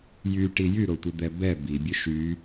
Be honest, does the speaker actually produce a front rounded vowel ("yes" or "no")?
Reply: yes